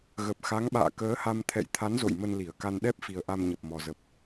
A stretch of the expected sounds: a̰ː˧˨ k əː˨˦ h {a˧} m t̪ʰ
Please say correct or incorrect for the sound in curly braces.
correct